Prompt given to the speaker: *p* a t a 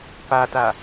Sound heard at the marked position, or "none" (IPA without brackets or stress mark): p